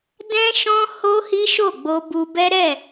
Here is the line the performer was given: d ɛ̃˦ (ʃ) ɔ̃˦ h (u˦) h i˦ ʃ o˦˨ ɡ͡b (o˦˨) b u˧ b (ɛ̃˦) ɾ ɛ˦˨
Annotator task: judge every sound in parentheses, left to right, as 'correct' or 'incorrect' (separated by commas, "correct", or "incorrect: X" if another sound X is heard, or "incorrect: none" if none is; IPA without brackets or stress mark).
correct, incorrect: o˦, incorrect: o˧, incorrect: ɛ˦